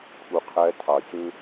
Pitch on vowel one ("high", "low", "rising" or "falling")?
low